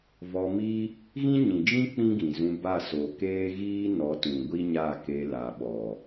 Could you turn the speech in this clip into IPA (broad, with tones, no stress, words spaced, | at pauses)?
vɔ˧ mi˦ | ɣĩ˦ɲĩ˨d͡ʒĩ˦ k͡pĩ˦ɡĩ˨zũ˧ba˦˨ so˨keː˦ ɣiː˦nɔ˨˦tũ˨ ɡʷi˦ɲa˦˨ke˧la˨ ɓɔ˨